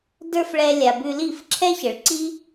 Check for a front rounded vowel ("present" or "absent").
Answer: absent